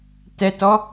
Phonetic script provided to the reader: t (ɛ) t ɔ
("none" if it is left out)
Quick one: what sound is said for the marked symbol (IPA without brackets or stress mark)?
ɛ